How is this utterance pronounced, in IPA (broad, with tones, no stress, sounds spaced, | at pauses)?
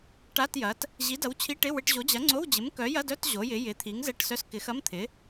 ʈ a˧˥˧ t j ɐ˨˥ t | ʑ i˨˥ d ɐ˨˥ w t͡ɕʰ i˧˥˧ ʈ ɪ˧˥˧ w ɪ˧˥˧ ʈ ʑ o˨˥ d͡ʑ ɐ˨˥ ŋ͡ǀ o˧˥˧ w d͡ʑ ɪ˨˥ m k œ˨˥ j ɐ˧˥˧ d œ˧˥˧ t ʑ o˨˥ j ɪ˨˥ j ɪ˨˥ t̪ʰ i˨˥ ŋ z ɛ˧˥˧ ʈ s œ˧˥˧ s k ɪ˨˥ x ɐ˧˥˧ m t̪ʰ ɪ˨˥